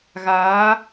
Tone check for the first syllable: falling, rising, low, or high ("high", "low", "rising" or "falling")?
rising